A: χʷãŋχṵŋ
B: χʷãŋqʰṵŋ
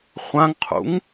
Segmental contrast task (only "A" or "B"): B